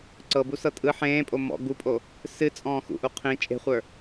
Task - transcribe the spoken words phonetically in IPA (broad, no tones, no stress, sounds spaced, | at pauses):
ǀ ɤ b u s ɤ tʼ ɯ ħ ẽː pʼ o m ɔ̰ ɡ u pʼ o | s ɨ t͡sʼ ɔ̃ː x ṵ ʔ u qʰ ĩ t͡ʃʼ e̤ χʷ ə˞